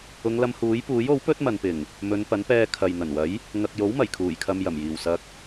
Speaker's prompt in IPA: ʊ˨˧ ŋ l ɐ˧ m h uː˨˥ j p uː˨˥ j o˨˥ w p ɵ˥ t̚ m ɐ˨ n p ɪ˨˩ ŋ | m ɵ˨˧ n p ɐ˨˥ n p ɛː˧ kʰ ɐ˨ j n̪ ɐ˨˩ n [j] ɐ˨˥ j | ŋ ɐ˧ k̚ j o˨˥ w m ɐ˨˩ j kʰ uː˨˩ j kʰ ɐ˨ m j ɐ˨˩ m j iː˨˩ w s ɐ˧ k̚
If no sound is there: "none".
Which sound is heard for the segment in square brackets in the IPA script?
w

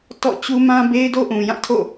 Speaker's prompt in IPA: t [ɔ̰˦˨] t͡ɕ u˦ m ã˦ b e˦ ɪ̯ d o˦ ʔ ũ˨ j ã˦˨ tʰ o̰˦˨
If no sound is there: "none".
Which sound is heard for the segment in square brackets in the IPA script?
ɔ̰˦˨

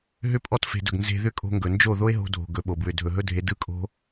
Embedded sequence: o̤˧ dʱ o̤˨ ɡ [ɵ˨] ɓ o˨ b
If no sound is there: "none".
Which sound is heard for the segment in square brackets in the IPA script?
ɵ˨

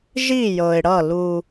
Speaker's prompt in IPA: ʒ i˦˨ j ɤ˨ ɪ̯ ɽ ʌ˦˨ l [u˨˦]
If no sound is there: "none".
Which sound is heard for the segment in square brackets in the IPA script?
u˦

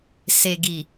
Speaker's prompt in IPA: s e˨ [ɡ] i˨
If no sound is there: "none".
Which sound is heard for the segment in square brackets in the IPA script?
ɡ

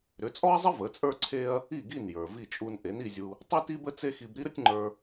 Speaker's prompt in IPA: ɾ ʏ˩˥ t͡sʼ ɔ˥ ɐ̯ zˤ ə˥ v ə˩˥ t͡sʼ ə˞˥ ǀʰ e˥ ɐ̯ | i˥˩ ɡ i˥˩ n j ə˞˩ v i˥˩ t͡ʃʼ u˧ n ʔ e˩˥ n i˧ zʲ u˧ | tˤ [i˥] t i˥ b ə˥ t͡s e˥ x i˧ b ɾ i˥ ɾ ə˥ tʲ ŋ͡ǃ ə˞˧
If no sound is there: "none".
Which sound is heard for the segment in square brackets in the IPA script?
i˥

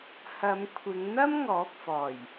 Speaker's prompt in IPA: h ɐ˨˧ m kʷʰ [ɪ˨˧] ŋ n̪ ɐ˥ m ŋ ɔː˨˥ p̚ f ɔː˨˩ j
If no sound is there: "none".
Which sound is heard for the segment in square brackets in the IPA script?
ɪ˨˧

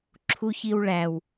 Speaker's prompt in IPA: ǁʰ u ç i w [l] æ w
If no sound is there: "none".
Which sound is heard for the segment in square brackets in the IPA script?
ɭ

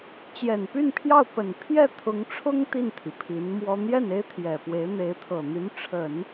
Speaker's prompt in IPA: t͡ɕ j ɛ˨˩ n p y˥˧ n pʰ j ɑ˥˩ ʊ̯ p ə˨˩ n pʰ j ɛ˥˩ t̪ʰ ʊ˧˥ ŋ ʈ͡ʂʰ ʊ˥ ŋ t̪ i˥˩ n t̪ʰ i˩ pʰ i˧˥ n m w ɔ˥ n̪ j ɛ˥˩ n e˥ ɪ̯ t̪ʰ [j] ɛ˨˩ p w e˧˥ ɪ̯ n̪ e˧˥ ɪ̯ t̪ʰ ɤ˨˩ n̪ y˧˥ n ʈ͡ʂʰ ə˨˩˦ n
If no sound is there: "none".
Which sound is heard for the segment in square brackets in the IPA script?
j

